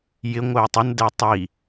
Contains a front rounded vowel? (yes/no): yes